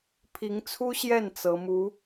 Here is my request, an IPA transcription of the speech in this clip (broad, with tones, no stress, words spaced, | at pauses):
pʰi˧˥ŋt͡sʰu˥ɕjɛ˥˩n t͡sɤ˧˥mu˧˥